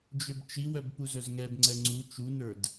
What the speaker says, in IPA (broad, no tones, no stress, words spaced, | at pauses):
d͡ʒøbt͡ʃiwœb puzœzŋɛbŋ͡ǀɛ ŋ͡ǀu t͡ʃunə˞d